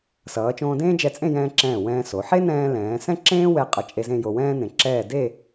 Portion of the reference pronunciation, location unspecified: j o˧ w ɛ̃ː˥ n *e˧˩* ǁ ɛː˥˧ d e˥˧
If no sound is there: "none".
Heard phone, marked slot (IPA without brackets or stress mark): ẽ˧˩